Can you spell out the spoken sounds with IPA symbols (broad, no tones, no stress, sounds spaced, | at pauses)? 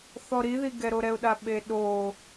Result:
θ ɔ ɾ i ð i ɡ ɛ ɾ o ɾ ɛ ʊ̯ ɗ a ɓ e ɗ o